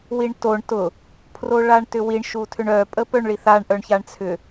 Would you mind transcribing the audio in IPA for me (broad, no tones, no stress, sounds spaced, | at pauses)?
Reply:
w i ɳ t o ɳ t ʊ | pʰ r o ɭ a ɳ t ʏ w i ɳ ʃ u tʰ ʏ ɳ œ pʼ ə p œ ɳ ɭ i θ a ɳ ʔ œ ɳ ç a ɳ t͡sʰ ʏ